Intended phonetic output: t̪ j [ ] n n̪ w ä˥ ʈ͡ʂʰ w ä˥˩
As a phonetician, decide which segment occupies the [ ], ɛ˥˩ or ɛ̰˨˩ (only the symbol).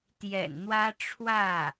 ɛ̰˨˩